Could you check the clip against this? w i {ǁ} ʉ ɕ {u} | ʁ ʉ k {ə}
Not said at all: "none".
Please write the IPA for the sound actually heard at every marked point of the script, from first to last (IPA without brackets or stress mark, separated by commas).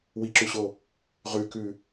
ǁ, o, ʉ